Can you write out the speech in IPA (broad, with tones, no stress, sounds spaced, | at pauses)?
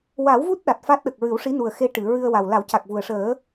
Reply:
w a˨˩˦ w v u˦˥ t̚ ɗ a˨˩ t̚ f a˦˥ t̚ ɗ ə˨˩ k̚ ɹ ɨ˨˩˦ w ʂ i˧˥ n u˨˩ ə̯ x e˧ ʈ ɨ˨˩˨ ɹ ɨ˧ ə̯ w a˨˩ w l a˨˩˦ w c a˨˩ k̚ v u˨˩ ə̯ ʂ əː˨˩˦